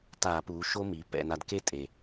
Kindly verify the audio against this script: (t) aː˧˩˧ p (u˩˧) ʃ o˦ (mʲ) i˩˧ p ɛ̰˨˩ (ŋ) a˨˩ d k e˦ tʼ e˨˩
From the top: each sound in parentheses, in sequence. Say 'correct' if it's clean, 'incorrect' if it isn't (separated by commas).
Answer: correct, incorrect, incorrect, incorrect